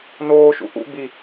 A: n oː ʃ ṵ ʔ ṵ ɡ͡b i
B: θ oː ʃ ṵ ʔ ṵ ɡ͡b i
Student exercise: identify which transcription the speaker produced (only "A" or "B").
A